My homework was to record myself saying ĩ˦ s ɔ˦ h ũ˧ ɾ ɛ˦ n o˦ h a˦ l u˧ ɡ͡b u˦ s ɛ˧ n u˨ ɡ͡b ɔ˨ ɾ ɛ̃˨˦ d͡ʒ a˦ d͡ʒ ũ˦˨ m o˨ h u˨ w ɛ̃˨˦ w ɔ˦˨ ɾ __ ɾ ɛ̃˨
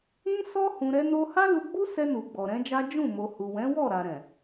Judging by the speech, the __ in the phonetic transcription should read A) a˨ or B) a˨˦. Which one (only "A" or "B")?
A